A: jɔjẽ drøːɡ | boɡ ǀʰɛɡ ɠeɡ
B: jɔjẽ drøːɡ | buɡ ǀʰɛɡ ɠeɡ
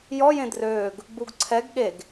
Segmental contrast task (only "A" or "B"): B